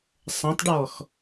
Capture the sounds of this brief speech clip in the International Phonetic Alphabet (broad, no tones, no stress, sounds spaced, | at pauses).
sˤ ɐ̃ tˤ ɖ ɔ x